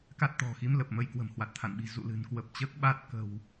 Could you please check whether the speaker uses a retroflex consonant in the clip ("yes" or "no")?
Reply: no